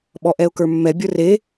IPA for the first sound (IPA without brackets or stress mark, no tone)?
ɓ